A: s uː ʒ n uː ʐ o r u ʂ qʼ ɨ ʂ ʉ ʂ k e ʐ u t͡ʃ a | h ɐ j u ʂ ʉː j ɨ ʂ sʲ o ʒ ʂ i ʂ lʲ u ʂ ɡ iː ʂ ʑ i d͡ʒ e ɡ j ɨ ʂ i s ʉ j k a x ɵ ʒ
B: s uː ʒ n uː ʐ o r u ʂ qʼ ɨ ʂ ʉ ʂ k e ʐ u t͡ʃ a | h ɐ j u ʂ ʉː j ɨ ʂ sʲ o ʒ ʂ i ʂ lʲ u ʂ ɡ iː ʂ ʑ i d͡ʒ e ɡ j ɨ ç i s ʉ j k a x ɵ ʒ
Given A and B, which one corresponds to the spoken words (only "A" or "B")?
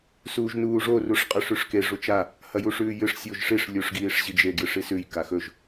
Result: A